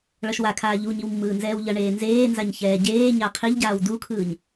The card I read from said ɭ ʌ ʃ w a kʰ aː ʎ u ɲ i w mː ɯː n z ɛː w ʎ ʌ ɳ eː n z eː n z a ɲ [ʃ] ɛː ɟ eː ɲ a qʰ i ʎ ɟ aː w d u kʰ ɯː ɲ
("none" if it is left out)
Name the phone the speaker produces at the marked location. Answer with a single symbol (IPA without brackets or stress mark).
ç